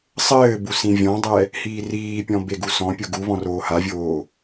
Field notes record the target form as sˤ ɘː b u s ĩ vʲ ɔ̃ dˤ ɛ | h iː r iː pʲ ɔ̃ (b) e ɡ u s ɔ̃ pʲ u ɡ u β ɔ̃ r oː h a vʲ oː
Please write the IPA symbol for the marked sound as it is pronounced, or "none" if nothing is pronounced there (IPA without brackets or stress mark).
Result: b